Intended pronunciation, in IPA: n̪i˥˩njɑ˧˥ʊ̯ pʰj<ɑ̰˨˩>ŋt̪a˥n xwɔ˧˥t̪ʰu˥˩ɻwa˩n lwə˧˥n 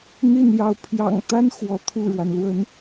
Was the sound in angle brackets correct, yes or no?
yes